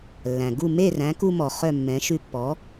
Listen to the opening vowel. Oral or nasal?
nasal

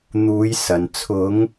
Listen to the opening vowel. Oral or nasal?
oral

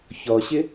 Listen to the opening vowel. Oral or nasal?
oral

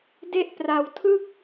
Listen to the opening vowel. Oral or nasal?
oral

